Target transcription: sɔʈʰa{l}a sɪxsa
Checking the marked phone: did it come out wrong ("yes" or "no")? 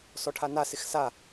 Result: yes